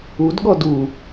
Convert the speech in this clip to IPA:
udɠɔ du

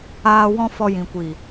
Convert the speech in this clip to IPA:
aː˧ wɔ̃˦fɔ˧ jĩ˨ kʷiː˨

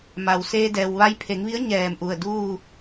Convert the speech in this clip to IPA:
ma˩w seː˧dɛː˩w ʋa˧jpʰe˩˧ŋʋi˧˥ə̯ ɲɛː˧˩mʔu˧˩ə̯duː˥˨

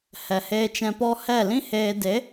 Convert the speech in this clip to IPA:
hɛ˨heː˧ t͡ʃɛ̃˧pɔ˦ hɛ˦˨lĩ˦heː˧ de˨˦

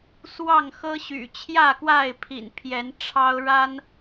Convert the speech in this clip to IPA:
swɑ˥˨ŋxɤ˦ɕy̰˨˩ t͡ɕʰjä˥˨kwa˥˨ɪ̯pʰḭ˨˩n pʰjɛ˨˦nʈ͡ʂʰɑ˦ʊ̯ ɻa˦n

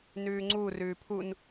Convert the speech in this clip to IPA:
nʉːŋ͡ǀu rʉːpʰun

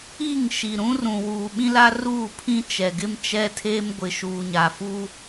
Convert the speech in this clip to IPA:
i˦˨ŋ ʃi˨ɾũ˦rũ˨wuː˨ ɓĩ˦la˦ ruː˦˨pʰĩ˦t͡ʃɛ˨ ɡɪ˦mt͡ʃɛ˦tʰeː˦m ɡʷɪ˨ʃuː˨ɲa˨fu˦

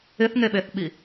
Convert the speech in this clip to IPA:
ɪθŋeɓeθɓi

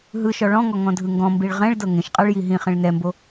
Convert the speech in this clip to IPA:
ɦɯʃɔ ɭɔ̃ŋɔ ŋɔ̃dʱɯŋɡɔ̃mbiɭ ʁɛ̃ɭ dɤŋẽʃqʼaɭ jiɦĩχẽɭ nɛmbo

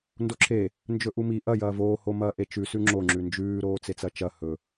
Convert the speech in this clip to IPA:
ndoǁʰe | nd͡ʒɵʔumi ʔɐ jɐːvoː homɐːʔet͡ʃʉ sʉŋ͡ǁo ŋ͡ǁʉnd͡ʒʉː ɾoːt͡set͡sɐt͡ʃɐ hɵ

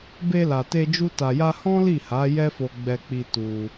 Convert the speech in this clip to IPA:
be˧la˨te˧d͡ʒu˧ ta˨ja˧ hɔ̃˦li˦˨ha˨˦ jɛ˦fo˧ɡ͡bɛ˧k͡pi˧ tu˧

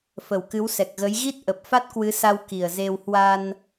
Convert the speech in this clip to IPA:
fə˨˩wkɨ˨˦wsɛ˨˩k̚ ɣə˨˦j ɣi˦˥t̚ ʔə˨˩p̚ fa˦˥t̚kwɨ˨˦sa˧w ki˨˩ə̯ze˧w hwa˧n

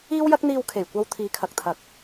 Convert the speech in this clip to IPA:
iː˥wjɐ˥k̚n̪iː˧w kʰe˨˩jkʷɐ˧w t̪ʰiː˨˧kʰɐ˨k̚t̪ʰɐ˨˥k̚

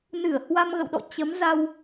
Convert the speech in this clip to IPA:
nɨ˧˩ə̯hwa˧mɣə̰˧˨wɗɔ̰˧˨ t͡ɕə˨˦mza˧w

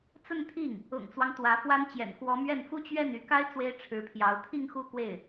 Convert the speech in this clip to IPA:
t͡sə˥˧nt̪ʰi˥˩ŋ | ʊ̰˨˩ŋt͡swɑ˦ŋ t̪wä˧˥fwa˥n t͡ɕjɛ̰˨˩nkwɔ˧˥mɥɛ˥˩n fu˥t͡ɕɥɛ˥˩ny˧˥ka˥ɪ̯ t͡swe˥ɪ̯ʈ͡ʂʰɻ̩˧˥pʰjɑ˧˥ʊ̯ t̪ʰi˥˧ŋxu˥˧ kwe˥˩ɪ̯

